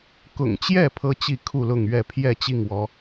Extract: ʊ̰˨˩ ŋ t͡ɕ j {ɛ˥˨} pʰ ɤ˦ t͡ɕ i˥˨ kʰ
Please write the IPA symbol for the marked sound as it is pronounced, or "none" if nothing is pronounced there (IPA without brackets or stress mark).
ɛ˥˨